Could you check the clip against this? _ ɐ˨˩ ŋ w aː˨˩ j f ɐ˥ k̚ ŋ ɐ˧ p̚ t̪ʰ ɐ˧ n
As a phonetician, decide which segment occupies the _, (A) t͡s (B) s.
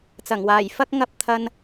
A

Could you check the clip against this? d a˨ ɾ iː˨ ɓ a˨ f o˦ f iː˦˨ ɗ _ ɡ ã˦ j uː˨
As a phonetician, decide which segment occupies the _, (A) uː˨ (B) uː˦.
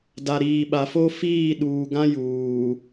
A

